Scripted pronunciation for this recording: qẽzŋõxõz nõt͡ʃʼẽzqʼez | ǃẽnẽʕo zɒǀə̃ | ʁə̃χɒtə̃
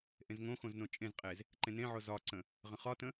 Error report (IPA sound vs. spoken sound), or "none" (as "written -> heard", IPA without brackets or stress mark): q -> ʔ